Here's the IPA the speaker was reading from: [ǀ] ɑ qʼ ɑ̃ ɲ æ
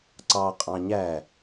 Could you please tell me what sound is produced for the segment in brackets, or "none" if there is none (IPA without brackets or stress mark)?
ǀ